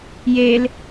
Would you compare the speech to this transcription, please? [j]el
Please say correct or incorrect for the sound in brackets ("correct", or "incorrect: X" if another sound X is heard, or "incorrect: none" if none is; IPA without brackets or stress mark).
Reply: correct